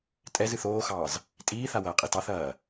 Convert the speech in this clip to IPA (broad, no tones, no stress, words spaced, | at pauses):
tʼɛzɨθ oːxɑːz | tʼiːθawɐːqʼi tɑθɐː